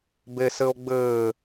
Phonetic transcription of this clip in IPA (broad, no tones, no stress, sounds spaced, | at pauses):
b e s ɘ o̯ ɡ͡b ɘː